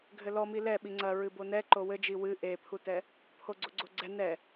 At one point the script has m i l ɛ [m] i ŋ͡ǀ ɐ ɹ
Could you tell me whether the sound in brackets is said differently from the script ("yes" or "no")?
yes